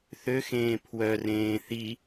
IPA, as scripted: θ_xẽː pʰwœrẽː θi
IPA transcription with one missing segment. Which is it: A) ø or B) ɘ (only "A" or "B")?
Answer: A